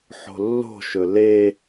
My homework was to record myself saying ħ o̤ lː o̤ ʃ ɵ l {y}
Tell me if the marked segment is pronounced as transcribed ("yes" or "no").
no